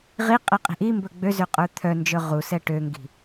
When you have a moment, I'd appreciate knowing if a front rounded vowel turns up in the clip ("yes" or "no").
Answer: yes